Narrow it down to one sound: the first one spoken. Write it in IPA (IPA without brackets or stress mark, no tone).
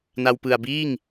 n